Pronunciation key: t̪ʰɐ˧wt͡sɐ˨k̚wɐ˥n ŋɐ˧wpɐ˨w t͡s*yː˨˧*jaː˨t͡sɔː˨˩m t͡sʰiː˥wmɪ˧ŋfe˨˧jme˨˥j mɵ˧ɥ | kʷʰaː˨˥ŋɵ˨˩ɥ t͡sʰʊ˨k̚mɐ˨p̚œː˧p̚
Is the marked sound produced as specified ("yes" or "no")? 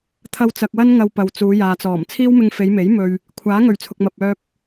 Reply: no